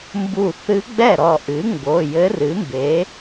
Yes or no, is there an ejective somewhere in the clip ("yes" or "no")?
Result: no